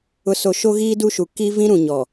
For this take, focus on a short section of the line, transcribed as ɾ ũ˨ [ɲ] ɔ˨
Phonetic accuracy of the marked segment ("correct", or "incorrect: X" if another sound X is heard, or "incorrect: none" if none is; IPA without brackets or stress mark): correct